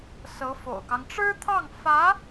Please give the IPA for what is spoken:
sɤ˧˥fo̰˨˩ʊ̯kɑ˦ŋ ʈ͡ʂɻ̩˥t̪ʰɑ˥˩ŋ fä˧˥

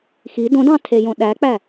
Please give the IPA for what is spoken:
xi dõdɑ̃ tʰejõɗæk͡pæ

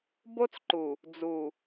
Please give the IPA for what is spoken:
bo˦t͡sǃu˨ | d͡zu˨

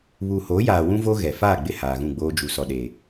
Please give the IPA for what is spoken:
βuː˨hoː˨˦jaː˨ wũ˦vo˦ ɣɛ˨ faː˦˨ɡ͡bɪ˦˨ haː˨ɣũ˦˨ɡ͡boː˦ d͡ʒu˨sɔ˨ɗe˨

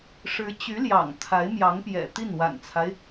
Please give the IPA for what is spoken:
ʂɻ̩˧˥ t͡ɕy˧˥ljɑ̰˨˩ŋ t̪ʰa˧˥ɪ̯mjɑ˧˥ŋ pjɛ̰˨˩t̪i˥˩n wa̰˨˩nt͡sʰa˦ɪ̯

